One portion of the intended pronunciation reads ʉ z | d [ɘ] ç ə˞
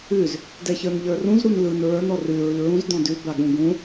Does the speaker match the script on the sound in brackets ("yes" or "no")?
no